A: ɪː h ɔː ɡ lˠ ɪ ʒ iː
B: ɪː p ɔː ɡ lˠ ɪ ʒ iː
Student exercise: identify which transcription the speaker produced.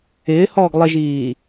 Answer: A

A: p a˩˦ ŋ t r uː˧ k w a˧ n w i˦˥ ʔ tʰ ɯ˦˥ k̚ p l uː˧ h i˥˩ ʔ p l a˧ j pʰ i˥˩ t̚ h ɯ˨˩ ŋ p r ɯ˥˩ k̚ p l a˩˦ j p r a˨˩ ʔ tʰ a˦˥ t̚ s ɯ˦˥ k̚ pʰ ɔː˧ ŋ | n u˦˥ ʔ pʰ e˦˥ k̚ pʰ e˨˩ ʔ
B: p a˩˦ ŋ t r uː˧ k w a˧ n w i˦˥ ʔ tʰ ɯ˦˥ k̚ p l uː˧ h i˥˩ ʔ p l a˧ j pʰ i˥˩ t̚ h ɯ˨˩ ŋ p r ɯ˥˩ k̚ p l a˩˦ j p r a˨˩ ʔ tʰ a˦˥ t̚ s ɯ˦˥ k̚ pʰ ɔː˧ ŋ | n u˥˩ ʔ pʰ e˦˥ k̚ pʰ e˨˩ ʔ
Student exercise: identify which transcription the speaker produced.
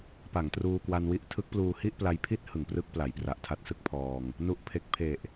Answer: B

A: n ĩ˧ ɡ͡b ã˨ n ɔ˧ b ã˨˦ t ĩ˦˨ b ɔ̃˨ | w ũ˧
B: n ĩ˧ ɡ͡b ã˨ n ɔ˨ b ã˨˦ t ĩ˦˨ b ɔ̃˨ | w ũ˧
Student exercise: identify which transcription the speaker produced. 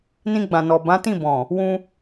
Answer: B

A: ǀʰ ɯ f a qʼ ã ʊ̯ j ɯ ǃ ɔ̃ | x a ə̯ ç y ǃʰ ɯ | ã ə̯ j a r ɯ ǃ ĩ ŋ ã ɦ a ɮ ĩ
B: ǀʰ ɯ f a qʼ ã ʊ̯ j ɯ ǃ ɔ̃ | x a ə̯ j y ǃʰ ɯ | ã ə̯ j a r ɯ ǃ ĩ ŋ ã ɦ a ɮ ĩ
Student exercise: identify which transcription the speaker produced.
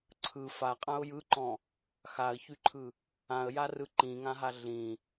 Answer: A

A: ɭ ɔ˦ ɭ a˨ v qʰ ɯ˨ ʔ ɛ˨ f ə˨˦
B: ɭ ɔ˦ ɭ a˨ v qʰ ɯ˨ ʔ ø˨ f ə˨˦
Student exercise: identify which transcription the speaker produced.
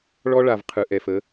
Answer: A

